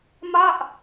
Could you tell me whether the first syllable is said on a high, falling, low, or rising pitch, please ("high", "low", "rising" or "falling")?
falling